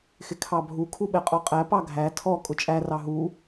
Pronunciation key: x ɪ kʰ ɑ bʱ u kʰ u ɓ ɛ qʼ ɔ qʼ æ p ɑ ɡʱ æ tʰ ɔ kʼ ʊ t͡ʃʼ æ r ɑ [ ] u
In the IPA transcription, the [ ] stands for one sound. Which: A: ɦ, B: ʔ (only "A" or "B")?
A